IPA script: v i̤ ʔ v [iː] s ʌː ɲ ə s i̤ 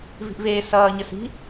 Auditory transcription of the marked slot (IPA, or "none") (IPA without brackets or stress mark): eː